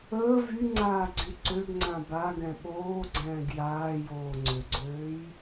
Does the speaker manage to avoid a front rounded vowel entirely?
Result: no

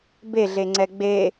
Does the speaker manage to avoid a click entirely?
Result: no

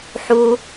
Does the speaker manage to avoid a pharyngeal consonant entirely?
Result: no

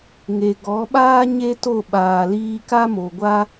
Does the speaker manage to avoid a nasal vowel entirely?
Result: yes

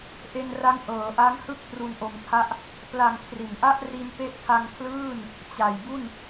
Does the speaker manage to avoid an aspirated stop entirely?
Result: no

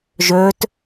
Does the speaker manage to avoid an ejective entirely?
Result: yes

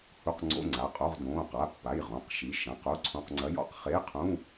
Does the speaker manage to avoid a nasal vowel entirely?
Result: no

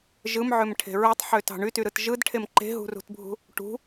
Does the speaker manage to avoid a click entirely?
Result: no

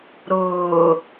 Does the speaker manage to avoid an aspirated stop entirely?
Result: yes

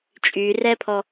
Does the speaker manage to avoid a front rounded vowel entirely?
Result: no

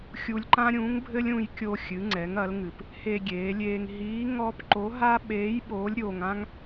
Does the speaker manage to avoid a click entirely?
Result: no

